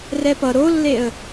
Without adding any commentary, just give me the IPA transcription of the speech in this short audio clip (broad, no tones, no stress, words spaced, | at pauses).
rɛpʌ ɾolːeə̯